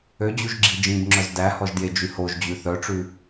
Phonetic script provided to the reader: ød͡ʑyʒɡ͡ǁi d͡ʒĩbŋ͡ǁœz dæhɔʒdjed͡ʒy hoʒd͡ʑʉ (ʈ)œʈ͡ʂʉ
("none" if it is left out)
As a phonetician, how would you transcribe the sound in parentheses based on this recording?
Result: θ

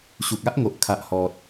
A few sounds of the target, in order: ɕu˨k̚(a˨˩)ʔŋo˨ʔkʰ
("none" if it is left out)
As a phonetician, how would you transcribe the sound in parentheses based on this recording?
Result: a˦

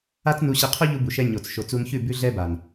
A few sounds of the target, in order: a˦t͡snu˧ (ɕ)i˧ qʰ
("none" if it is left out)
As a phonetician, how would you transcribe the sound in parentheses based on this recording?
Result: ɕ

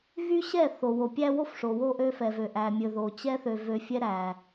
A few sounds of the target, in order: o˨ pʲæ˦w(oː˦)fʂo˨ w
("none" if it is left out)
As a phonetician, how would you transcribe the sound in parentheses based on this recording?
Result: o˦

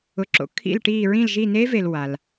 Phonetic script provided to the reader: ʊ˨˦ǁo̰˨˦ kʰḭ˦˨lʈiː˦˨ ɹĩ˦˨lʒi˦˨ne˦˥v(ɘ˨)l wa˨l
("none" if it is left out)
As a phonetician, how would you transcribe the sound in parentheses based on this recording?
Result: e˨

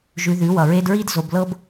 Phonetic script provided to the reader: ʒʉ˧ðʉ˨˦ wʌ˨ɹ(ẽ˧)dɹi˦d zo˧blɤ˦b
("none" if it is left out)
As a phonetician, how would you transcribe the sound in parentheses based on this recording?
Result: e˧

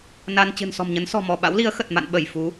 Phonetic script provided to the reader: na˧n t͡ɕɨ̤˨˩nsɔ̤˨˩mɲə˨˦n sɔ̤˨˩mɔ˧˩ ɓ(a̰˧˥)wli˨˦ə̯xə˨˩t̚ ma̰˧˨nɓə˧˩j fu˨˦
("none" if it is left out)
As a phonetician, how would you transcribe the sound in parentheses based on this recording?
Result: a̰˧˥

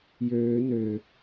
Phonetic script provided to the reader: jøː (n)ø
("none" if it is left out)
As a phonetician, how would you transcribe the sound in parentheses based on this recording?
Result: n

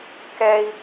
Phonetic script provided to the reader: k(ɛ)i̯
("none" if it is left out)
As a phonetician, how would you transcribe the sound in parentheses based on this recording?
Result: ɛ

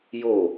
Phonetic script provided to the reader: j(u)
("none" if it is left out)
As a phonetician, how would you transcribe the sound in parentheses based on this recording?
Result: o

